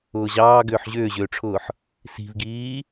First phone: ʊː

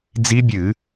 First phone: d͡z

